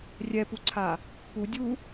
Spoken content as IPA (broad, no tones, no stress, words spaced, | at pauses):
rʲɛpuǀʰa | pudʲu